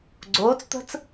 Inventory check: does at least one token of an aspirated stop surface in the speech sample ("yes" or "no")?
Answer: no